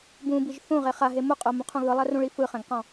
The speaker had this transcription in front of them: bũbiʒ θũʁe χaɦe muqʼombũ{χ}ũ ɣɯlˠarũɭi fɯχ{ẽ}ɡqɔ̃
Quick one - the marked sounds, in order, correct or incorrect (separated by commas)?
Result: incorrect, incorrect